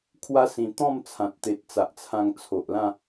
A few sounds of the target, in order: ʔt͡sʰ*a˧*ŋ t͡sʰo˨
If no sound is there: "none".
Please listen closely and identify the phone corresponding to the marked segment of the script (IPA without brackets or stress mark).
ã˧